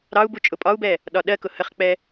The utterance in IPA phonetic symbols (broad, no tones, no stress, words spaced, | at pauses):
ɾɑu̯bu t͡ʃʼʊpʼɒu̯bɛ | ɗɒɗɜkʊ həχk͡pɛ